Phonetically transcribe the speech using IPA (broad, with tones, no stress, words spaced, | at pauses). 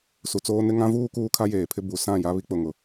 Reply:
su˨t͡soː˦nɪ˦ ŋã˦vuː˦ kuː˦kʰa˦jeː˨pʰɪ˦ bu˨sã˦˨ ja˦βi˦k͡pʊ˨ŋʊ˨